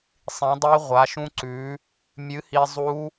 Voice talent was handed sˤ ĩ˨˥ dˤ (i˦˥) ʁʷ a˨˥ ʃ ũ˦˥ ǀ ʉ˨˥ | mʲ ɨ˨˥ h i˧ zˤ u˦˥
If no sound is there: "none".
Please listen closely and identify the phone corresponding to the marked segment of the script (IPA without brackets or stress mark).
i˦˥